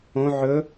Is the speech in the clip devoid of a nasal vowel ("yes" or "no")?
no